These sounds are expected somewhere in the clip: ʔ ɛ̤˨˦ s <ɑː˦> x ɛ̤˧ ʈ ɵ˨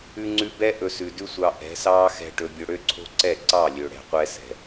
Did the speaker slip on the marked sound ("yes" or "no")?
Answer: no